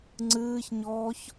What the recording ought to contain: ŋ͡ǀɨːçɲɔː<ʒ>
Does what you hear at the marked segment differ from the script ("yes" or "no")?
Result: yes